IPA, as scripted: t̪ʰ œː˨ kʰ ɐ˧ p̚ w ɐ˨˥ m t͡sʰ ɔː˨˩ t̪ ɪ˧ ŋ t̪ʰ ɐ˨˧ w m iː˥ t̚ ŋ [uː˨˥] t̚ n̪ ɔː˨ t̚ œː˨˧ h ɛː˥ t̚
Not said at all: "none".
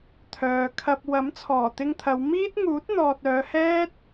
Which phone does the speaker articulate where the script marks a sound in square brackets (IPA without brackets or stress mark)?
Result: uː˨˥